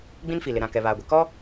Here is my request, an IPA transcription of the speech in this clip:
ɡ͡bĩ˦nfi˨lɪ˨ ɾã˦˨kɛ˨ βaː˨ɡʷe˨ kɔ˦

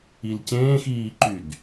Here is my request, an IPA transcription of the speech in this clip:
ilcẽːxiːǃyd

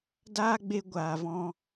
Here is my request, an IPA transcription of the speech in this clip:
daː˦ɡ͡be˧ ɡʷaː˨vɔ̃˧

